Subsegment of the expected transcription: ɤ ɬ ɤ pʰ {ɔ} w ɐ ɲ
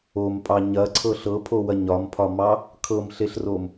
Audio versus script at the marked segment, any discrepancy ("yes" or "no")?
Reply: yes